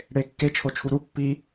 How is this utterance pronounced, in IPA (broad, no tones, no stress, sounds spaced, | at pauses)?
ɽ e kː e t͡ʃʰ o t͡ʃʰ u ɾ u pː i